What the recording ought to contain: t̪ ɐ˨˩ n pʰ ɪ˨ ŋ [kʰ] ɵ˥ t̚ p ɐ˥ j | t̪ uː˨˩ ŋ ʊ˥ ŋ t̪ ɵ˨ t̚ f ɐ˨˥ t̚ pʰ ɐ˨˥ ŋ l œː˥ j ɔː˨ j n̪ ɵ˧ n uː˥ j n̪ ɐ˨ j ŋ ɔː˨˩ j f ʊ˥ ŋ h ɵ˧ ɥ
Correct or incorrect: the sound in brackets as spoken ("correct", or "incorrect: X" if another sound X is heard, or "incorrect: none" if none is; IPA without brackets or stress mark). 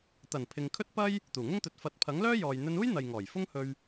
correct